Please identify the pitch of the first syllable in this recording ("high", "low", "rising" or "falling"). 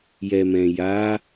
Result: low